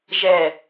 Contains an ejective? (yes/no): no